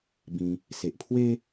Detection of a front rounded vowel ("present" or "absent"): absent